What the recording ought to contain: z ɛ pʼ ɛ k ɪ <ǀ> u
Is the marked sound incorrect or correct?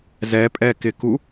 incorrect